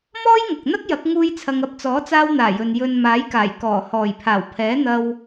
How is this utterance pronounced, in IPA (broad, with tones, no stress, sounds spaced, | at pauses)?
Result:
m ɔː˥ j ŋ ɐ˨ k̚ n̪ ɐ˥ k̚ j ɐ˨˥ k̚ ŋ uː˧ j t͡sʰ ɐ˨ ŋ ɐ˧ p̚ t͡s ɔː˨˥ t͡s aː˧ w n̪ aː˨˩ j ɵ˨ n j ɵ˨ n m aː˨˥ j k aː˨˩ j k ɔː˨˩ h ɔː˨˩ j pʰ aː˨˩ w pʰ ɛː˨˥ n̪ ɐ˧ w